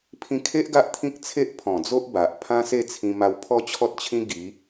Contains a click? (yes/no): no